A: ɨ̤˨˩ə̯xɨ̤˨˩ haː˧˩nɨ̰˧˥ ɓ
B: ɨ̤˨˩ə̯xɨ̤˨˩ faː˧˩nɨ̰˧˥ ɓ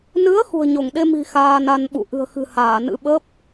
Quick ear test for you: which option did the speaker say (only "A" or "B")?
A